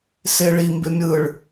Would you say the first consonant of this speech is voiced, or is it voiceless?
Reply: voiceless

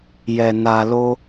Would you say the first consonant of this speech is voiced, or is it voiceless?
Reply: voiced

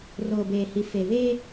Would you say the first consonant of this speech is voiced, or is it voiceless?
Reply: voiced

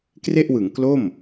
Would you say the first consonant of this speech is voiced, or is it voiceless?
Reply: voiceless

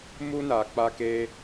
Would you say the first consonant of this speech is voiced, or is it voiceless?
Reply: voiced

